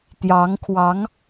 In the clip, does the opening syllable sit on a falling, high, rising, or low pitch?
rising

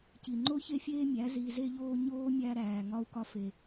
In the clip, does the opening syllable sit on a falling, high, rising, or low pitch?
low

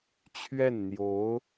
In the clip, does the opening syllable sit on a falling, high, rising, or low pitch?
falling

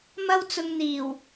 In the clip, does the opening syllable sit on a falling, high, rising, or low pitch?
high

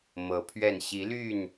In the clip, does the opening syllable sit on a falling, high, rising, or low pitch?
rising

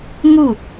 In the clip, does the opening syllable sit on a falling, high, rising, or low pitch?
falling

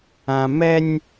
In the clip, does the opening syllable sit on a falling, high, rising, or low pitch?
high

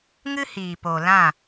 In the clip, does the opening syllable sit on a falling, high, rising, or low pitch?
high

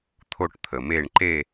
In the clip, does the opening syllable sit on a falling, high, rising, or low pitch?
falling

